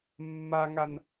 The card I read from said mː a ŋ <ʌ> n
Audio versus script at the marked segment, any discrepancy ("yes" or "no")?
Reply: yes